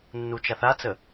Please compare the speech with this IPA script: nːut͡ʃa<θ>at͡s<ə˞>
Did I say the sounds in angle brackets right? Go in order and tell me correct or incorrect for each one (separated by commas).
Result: correct, incorrect